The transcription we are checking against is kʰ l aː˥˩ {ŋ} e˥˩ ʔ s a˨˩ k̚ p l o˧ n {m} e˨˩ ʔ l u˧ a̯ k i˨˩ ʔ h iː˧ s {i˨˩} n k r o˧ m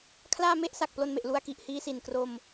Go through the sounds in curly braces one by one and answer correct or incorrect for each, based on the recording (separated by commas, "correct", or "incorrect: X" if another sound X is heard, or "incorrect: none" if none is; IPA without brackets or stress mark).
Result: incorrect: m, correct, correct